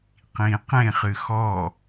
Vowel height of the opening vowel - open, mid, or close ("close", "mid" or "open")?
close